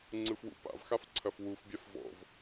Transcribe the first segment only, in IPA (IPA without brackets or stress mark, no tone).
ŋ͡ǀ